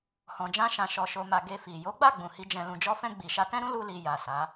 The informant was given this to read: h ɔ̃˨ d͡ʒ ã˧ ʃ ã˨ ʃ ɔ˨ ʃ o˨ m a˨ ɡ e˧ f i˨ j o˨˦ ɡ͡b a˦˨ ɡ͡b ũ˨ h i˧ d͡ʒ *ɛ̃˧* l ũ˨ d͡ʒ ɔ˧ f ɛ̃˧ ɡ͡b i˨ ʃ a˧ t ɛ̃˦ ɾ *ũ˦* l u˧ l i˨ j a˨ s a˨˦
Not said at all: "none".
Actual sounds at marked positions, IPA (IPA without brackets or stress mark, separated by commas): ɛ̃˨, ũ˦